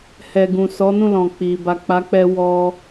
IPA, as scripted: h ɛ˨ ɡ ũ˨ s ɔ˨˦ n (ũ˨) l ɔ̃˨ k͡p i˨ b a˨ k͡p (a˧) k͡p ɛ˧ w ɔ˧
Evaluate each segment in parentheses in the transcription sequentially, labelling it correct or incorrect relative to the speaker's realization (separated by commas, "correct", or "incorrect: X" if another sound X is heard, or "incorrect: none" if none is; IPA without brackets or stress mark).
incorrect: ũ˦˨, incorrect: a˨˦